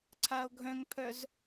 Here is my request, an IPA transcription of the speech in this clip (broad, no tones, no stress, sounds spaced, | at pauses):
ǀʰ a o̯ ɡʱ œ̃ ŋ pʰ œ z